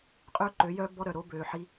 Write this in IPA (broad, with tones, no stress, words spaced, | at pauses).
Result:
qʼøː˦ǃø˨˦jœː˦ bɔ˦ɾœ˨ɾo˦ bøː˨ħi˧